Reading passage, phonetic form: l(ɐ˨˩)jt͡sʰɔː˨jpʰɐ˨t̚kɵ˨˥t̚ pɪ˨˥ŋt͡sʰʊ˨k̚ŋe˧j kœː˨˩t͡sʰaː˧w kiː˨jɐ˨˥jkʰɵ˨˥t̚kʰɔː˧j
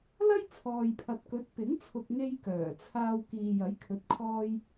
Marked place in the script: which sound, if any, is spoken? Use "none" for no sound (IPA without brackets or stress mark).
ɐ˥